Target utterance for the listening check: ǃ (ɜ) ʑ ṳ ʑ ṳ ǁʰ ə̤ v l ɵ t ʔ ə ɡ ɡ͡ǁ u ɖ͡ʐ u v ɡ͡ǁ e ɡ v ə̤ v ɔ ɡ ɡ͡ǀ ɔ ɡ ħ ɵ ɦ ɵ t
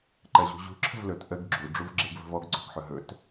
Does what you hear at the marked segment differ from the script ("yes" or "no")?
no